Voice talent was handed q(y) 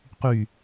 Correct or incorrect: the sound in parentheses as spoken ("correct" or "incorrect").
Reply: correct